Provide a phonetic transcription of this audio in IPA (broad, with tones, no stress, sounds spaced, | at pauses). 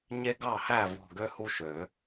ɲ e˦ ɡ ɑ˥˩ h æ˥˩ v ɔ̤˧˩ ɡ ø˦ h u˦ ʃ ø˨˩˦